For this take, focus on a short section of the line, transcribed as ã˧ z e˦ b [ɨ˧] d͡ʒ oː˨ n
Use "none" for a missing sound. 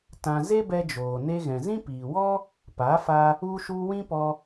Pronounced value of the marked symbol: ɛ˧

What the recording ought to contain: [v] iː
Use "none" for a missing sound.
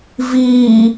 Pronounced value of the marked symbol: v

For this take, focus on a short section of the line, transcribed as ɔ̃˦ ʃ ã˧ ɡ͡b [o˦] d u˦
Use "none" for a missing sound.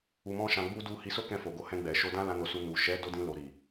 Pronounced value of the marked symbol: u˦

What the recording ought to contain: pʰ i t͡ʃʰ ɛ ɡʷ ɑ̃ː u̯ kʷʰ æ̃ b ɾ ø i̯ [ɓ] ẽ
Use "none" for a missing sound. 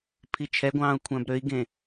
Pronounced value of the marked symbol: ɡ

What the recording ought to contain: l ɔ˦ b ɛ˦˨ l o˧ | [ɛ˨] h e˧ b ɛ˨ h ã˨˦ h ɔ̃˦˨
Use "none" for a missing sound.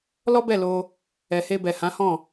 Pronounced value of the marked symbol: ɛ˨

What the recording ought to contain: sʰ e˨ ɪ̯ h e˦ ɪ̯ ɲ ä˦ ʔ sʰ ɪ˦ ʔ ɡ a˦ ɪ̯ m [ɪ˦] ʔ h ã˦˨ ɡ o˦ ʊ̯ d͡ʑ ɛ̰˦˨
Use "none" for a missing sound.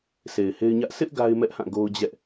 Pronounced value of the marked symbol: ɛ˦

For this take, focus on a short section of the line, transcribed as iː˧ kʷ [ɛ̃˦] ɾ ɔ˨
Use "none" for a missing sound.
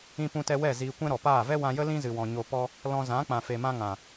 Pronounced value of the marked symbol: ɛ̃˦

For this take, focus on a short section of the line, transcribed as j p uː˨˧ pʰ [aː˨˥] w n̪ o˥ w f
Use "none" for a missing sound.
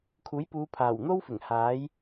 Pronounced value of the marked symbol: aː˨˩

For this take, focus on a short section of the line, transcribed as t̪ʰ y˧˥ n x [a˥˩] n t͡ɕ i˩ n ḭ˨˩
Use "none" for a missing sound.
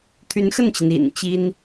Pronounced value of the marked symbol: ə˥˩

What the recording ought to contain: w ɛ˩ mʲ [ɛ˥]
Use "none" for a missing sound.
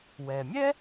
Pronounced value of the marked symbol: ɛ˥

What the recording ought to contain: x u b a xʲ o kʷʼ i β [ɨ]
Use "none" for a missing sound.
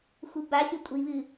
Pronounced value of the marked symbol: ɨ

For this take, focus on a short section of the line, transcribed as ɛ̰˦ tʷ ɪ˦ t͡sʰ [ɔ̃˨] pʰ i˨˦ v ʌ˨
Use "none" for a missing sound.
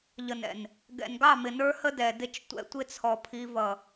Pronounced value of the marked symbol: ɔ˨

